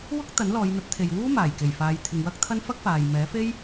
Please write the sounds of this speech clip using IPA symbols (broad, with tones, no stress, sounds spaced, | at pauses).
w ʊ˥ k̚ t̪ ɐ˨˥ n l ɔː˨˧ j n̪ ɐ˨˥ t̚ t̪ʰ e˨ j w uː˥ m aː˨˩ j k e˨˩ j f aː˨˧ j t̪ʰ ɪ˨ ŋ w ɐ˥ k̚ t̪ʰ ɐ˥ n f ɐ˥ k̚ f aː˨ j m ɛː˨˥ f e˥ j